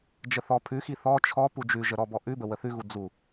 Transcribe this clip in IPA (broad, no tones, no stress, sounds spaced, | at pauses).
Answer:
d͡ʒ ə θ ɔ pʰ ʉ x i θ ɔ t͡ʃʰ ɔ p u d͡ʒ ʉ ʒ ə ɾ ɔ b ɔ ʔ ʉ b ə w ə θ ʉ ɣ u d͡z u